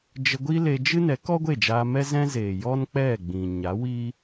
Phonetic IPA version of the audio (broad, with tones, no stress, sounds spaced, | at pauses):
d͡ʒ ə˧ ɡʷ i˦ l e˧ d͡ʒ ɨ˦ n ɛ˨˦ k ɔ˦ ɡʷ e˦˨ d͡ʒ aː˧ m ɛ˦ z ɛ̃˦ z eː˨ j ɔ˦ n k͡p ɛ˦˨ ɡ͡b ĩ˨ ɲ a˨˦ w i˦